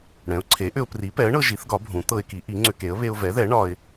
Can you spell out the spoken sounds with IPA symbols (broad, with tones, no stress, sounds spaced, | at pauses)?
ɽ ɛ̃˩˥ ʊ̯ ǀʰ e˩˥ ʔ ʏ˧ ʊ̯ p r i˩˥ p ɛ˩˥ ə̯ ɳ ɤ˧ ʒ i˩˥ θ ɡ ɒ˩˥ bʱ ũ˩˥ t̪ ɤ˧ ɪ̯ k i˩˥ ʔ i˩˥ ŋ͡ǀ ʏ˧ k e˩˥ ə̯ β e˧ ʊ̯ v ɛ˩˥ ð ɛ˩˥ ɳ ɒ˧ ɪ̯